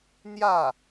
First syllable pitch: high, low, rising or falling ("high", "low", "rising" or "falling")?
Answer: falling